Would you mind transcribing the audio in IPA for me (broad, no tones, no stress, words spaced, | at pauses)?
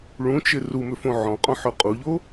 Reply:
ɭũt͡ʃɪ rumʏfõ ʕɔ̃qʼɔ̃ħœ qʼuʎo